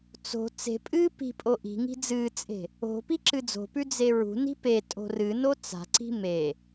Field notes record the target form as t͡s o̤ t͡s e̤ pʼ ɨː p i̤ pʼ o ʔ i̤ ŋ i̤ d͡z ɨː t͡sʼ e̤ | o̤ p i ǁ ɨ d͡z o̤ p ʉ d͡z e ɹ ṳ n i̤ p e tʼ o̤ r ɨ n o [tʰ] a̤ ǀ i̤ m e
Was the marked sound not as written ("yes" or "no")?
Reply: yes